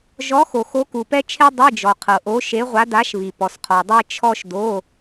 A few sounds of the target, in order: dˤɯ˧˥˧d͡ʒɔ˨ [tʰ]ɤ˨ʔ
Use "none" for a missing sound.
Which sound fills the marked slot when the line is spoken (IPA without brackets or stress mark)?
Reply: qʰ